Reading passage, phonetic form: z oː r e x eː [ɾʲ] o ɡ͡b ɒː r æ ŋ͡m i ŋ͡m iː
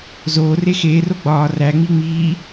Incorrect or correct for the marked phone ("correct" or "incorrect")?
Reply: incorrect